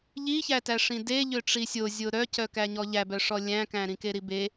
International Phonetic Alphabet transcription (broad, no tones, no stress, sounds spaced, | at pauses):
ʎ i ç æ t æ ʂ ĩ d e ʎ ø ʈ͡ʂ i sʲ o zʲ o ɾ œ c œ k æ ɲ ɔ ʎ æ b œ ʂ ɔ lʲ æ̃ k æ̃ ɾ ĩ k e ɾ i b e